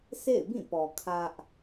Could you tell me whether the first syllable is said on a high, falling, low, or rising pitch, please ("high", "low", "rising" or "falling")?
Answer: falling